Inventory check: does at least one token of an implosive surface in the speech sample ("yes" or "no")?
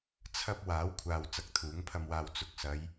no